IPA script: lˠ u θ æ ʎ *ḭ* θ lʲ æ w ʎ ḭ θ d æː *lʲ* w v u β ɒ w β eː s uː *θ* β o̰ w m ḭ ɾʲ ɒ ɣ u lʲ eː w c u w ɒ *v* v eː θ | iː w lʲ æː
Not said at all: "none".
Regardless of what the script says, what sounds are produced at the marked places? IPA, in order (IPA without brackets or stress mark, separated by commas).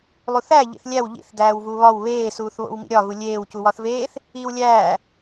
ḭ, none, θ, θ